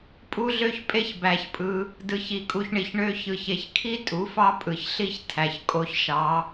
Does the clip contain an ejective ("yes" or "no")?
yes